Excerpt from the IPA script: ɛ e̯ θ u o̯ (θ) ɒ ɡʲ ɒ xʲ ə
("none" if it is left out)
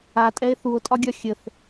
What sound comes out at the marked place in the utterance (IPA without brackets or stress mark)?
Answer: tʼ